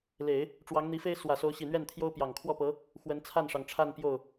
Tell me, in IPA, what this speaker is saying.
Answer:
l e˨˩˦ ɪ̯ | ʈ͡ʂ w ɑ˧˥ ŋ n̪ i˧˥ f e˥ ɪ̯ s w ä˨˩ s o˧˥ ʊ̯ ɕ i˨˩ n̪ ɥ ɛ˥˩ n t̪ʰ j o˥ ʊ̯ p j ɑ˨˩ ŋ kʰ w ɔ˥˩ p ɤ˧˥ | x w ə˧˥ n t͡sʰ a˥˩ n ʂ ɑ˩ ŋ ʈ͡ʂʰ a˥˧ n p j o˥˩ ʊ̯

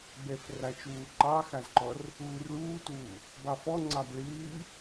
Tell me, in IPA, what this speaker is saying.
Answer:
b ɛ f r a t͡ʃ uː ǃ ɑ x a z ǃ ɔ r | uː r ɭ uː t uː | b ɑ f ɔ ŋ͡ǀ ɑ b ɭ ɨː

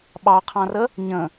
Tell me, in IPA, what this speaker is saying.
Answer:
ɓ ɑ qʰ ɑ̃ r ə | ɲ ə̃

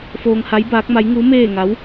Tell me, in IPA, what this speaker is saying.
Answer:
f oː˧ ŋ h a˧˥ j b aː˧˥ k̚ m a˧˥ j ŋ u˧˥ m eː˥˨ ŋ a˧˥ w

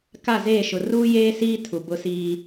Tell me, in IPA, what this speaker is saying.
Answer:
k a˦˨ z eː˦˨ ʃ ʊ˨ r uː˦ j eː˦ s iː˦ tʰ u˨ b ʊ˦ s iː˦

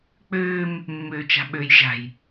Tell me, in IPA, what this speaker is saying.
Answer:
k͡p øː m | mː øː t͡ʃ a̤ ɓ ø j ʒ a̤ j

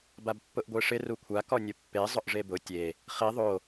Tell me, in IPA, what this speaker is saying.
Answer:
b a b pː ʊ ʔ ɡʷ e ʂ ɪ r u kʷʰ a k ɔ nʲ ʊ pː e zˤ ʊ ʔ ʐ e b ʊ tʲ e | χ i ðˤ o

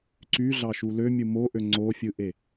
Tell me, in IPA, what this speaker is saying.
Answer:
ǀ y ɮ ɑ ʃ u l ø mʲ ɯ m o ʔ ø ŋ͡ǀ o fʲ ɯ ʔ e

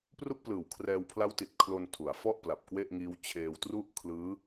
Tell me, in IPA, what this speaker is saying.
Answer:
p r u˥˩ k̚ p l ɯː˨˩ w kʰ r ɛː˧ w pʰ l a˦˥ w t i˨˩ t̚ kʰ l o˧ n tʰ u˩˦ a̯ f ɔ˥˩ ʔ p l a˨˩ p̚ k w e˥˩ ʔ ŋ iː˦˥ w t͡ɕʰ eː˧ w t r u˥˩ ʔ kʰ l ɯː˦˥

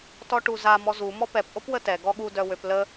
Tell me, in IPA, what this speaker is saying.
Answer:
t ɔ ʈ u z a m ɔ z u m ɔ p ɛ p ʔ o p w ə t ɛ ɡ ɔ ɠ u d œ w ø p l ə

